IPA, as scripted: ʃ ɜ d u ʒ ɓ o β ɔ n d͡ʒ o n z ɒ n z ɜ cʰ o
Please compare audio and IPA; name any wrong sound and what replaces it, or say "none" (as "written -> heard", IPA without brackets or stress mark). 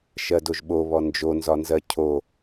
u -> o